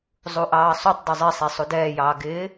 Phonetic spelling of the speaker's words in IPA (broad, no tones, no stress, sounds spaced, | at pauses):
zˤ u ʔ ɑː sˤ u tˤ dˤ ɪ zˤ ɪː sˤ e sˤ u d ɛː j ɑː ɡ ɪː